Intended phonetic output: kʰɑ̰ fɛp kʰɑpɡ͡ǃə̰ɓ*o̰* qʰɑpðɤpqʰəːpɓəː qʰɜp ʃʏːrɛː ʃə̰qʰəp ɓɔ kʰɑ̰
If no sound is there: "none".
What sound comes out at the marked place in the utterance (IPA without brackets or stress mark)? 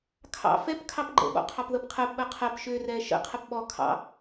ɔ̰